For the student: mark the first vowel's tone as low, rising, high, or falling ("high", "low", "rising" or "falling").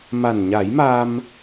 low